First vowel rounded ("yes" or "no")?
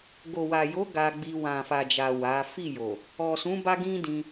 yes